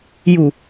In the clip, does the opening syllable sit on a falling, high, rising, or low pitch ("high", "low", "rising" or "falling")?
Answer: low